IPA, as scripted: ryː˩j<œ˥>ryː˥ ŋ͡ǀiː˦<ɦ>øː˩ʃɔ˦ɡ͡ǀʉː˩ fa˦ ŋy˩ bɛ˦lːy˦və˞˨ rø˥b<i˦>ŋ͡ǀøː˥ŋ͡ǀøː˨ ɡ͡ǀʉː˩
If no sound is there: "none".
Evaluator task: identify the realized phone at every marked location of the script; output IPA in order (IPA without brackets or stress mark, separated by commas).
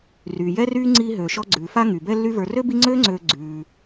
ɛ˥, ɦ, i˦